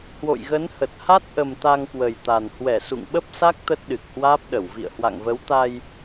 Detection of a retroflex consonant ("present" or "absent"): absent